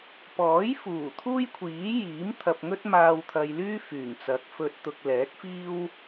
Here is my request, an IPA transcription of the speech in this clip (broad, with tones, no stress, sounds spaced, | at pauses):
p ɔː˨˥ j f uː˨˩ t̪ʰ uː˥ j kʷʰ iː˨˥ j iː˨˥ m t̪ʰ ɐ˧ p̚ ŋ ɵ˥ t̚ m aː˧ w t̪ʰ ɐ˧ j l yː˥ f yː˨˩ ŋ t͡s ɐ˨˥ k̚ f ɵ˨ t̚ t̪ ʊ˨ k̚ l ɛː˨˥ k̚ f iː˥ w